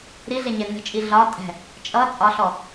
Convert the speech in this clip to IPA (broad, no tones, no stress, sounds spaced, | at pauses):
ɾ i ɮ ɛ ɲ ɛ n ə̤ t͡ʃʼ i ɮ ɒ tʼ ɛ̤ | t͡ʃʼ ʌ t͡sʼ ɒ ɬ ɔ